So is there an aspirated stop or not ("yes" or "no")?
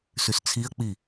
yes